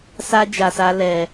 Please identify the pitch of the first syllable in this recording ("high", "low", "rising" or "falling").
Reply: high